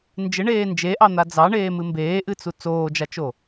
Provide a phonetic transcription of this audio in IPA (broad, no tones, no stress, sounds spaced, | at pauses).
n d͡ʒ ɪ ɳ eː n d͡ʒ e ʔ ɑ n̪ a d͡z ɑ ɳ eː m ɨ m b eː ʔ ɨ t͡s u t͡s oː d͡ʒ a t͡ʃ o